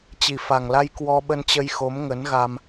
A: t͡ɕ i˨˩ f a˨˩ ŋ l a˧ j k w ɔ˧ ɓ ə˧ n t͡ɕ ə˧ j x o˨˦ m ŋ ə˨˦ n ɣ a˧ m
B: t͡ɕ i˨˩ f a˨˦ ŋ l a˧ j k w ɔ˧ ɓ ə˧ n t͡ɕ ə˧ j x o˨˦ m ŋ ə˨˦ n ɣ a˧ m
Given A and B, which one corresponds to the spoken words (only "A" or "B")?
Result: A